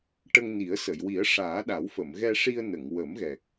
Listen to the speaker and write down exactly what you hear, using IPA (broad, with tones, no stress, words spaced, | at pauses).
ʈə˧ŋni˨˩˦ə̯sə˨˩˨j wi˨˩˦ə̯ʂaː˨˩˦ ɗa˨˩˦wfə˨˩˨m ɣɛ˧ʂi˧ə̯ nə˨˩˨ŋ wə˨˩˦mɣɛ˨˩k̚